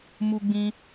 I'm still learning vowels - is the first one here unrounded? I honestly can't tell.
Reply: no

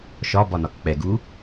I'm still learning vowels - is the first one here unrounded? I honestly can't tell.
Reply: no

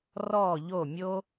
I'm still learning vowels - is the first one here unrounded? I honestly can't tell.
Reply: no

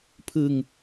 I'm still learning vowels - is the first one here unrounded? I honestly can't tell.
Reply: yes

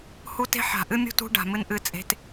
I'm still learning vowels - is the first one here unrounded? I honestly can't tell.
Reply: no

